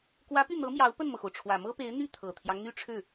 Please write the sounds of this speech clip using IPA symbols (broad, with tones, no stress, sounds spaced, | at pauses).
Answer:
k w ä˧˥ p y˥˩ n̪ ɤ˧˥ m j ɑ˧˥ ʊ̯ p ə˥˩ n m ɤ˩ x o˩ ʊ̯ ʈ͡ʂʰ w ä˨˩ m ɤ˥ p e˧˥ ɪ̯ n̪ y˥˩ t̪ʰ ɤ˨˩ t̪ʰ j ɑ˦ ŋ n̪ y˥˧ ʈ͡ʂʰ ɻ̩˥˩